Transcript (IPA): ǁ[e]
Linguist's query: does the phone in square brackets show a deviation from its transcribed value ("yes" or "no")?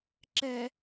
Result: yes